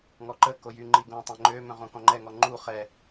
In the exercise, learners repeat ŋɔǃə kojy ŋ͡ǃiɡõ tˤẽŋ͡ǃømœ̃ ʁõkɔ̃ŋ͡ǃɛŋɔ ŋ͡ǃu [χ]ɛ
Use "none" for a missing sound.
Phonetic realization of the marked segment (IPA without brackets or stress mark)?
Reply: χ